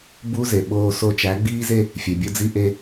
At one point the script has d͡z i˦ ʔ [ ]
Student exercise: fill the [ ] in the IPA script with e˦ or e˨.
e˦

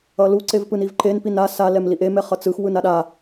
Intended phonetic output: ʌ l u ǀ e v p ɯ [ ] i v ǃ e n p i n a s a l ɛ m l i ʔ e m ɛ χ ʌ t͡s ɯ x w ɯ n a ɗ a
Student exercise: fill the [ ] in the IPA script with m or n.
n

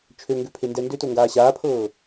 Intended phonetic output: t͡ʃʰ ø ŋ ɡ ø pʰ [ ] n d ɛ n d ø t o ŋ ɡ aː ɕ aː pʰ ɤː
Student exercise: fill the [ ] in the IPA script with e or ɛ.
e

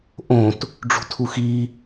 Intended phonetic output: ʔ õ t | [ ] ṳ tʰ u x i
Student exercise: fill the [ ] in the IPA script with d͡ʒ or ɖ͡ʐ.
ɖ͡ʐ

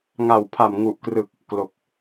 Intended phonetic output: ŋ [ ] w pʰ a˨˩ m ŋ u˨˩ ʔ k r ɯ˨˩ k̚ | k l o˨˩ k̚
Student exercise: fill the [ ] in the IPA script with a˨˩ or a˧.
a˨˩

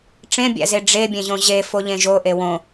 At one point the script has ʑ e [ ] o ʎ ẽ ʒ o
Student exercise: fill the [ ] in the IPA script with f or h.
f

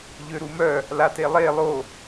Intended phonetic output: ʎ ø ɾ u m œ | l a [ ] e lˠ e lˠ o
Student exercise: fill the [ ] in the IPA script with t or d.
t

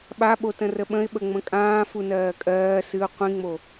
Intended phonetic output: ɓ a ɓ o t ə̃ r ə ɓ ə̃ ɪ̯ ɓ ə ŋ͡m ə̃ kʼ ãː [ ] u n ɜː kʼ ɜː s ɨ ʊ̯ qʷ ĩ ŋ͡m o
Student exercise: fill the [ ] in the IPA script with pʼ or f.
f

